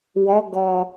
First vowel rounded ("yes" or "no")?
yes